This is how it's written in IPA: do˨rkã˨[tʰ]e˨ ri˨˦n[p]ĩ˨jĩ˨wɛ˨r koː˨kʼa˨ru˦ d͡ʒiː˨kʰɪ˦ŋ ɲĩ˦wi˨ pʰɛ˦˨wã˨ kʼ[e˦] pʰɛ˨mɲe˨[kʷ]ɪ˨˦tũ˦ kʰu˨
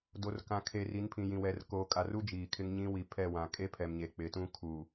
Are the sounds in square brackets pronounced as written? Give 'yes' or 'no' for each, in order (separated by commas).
no, no, yes, no